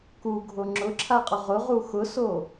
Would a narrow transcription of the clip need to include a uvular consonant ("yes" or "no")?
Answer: yes